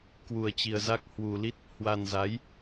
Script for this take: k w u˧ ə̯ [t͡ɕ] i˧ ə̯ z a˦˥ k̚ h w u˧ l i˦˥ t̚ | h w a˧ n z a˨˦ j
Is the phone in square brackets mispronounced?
no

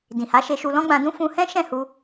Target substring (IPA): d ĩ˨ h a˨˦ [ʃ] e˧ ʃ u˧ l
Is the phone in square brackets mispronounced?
no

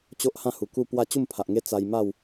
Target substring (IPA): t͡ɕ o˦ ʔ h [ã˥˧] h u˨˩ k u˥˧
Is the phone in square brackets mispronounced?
no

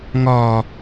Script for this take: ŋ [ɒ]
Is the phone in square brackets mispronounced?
no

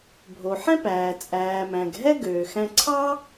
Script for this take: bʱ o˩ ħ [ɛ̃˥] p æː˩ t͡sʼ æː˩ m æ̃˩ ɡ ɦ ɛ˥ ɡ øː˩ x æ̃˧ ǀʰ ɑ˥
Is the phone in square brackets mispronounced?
no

